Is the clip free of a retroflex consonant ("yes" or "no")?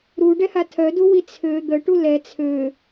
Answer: no